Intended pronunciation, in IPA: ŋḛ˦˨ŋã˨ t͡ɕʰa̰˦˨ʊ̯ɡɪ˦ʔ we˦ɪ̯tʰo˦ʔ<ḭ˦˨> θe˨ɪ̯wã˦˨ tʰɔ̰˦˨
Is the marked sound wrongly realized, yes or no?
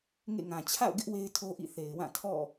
no